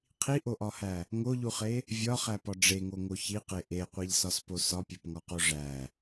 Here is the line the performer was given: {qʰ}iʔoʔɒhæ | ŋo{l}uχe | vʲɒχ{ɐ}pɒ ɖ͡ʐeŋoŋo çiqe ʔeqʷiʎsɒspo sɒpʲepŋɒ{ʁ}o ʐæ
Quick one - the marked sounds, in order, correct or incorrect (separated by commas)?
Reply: correct, incorrect, incorrect, incorrect